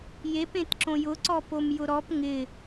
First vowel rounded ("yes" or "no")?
no